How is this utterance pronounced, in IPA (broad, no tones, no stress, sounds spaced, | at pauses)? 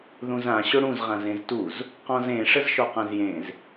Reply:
ð ũ z ã ɕ ʊ ɽ ũ z ʁ ã z ẽ z t u z | q ɔ̃ z ẽ ʂ ə z ʃ ɔ q ã z j ẽ z